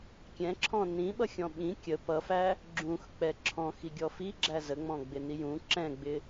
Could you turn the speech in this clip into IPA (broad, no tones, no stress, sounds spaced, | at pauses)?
kʲ ɛ̃ ǁʰ ɔ̃ n ĩ ɓ ʌ xʲ ɔ̃ ɓ ĩ kʲ ə p ʌ f æ | ɡ͡ǁ ũ x k͡p ɛ ǁʰ ɔ̃ x i ɡʲ ɔ f i ɡ͡ǁ æ z ə ŋ͡m ɔ̃ ɡ͡b ɪ n i j ũ ǁ ɛ̃ ɡ͡b ɪ